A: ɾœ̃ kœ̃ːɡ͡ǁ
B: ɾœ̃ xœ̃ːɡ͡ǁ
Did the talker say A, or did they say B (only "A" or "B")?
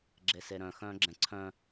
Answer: B